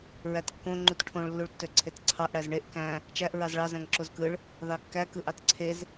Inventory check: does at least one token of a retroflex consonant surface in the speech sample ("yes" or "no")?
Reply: yes